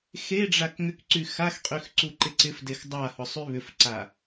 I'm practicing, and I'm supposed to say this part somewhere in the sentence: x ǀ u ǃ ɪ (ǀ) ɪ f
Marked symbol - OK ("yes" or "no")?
yes